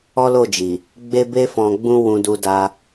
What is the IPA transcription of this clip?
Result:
ɔ˦ l o˦˨ d͡ʒ i˨ | ɡ͡b e˦ b e˦ f ɔ̃˧ ɡ͡b ũ˦ w ũ˧ d u˧ d a˧

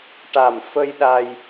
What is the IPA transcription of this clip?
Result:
ʈ a˨˩ m f ə˧ j ɗ a˧ j

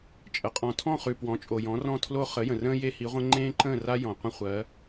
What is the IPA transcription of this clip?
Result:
t͡ʃʼ ə˩ qʼ ɔ̃˩ tʰ ɔ̃˥˨ χ ʉ˩ p w ɔ̃˩˥ t͡ʃʼ o˩ j ɔ̃˩˥ r ɔ̃˥˨ tʰ l o˥ χ ə˩˥ j ə̃˩ r ə̃ː˥ j e˥ h i˩˥ ʁʷ ə̃˥ ŋ͡ǃ ẽː˥ ǃ ə̃ː˥˨ r a˥ j ɔ̃˩ qʷ ə̃˥ χʷ ɜ˩˥

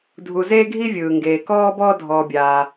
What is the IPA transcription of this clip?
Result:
dʱ u˨ z eː˦ ɡʱ i˦ vʲ ɯː˩ ŋ ɡ eː˩ k ɔː˦ b ɔː˦ dʱ ɔː˨ bʲ aː˨

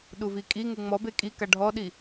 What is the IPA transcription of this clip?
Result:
ɗ u v i kʼ i ŋ u ŋ͡m ɔ b e kʼ i k a ɖʱ ɔ ɗ i

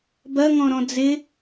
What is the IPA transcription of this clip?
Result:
b ɐ ŋ ɔ̃ ɾ ɔ̃ d͡z ɪ

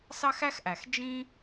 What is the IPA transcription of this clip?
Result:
s ɑ˥ x æ˥ x ʔ æ˩ x d͡ʒ ĩ˥

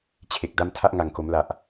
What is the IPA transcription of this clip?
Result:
t͡ɕʰ e˨˩ k̚ d a˥˩ m tʰ a˥˩ ʔ ŋ a˨˩ ŋ k o˩˦ m l a˨˩ ʔ

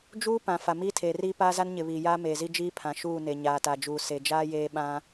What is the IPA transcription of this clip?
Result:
d͡ʒ uː˦ p ã˨ f a˨ m iː˦ tʰ eː˨ r iː˦ p aː˦ z a˦ n ɲ ɪ˨ β iː˨ j aː˦ m eː˨ z i˦ d͡ʒ iː˦ pʰ ã˨ ʃ uː˦˨ n e˨ ɲ aː˨ t a˨ d͡ʒ uː˨ s e˨ d͡ʒ aː˦ j eː˦ ɓ ã˦

